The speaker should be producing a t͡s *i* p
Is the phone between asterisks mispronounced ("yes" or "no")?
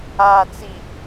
no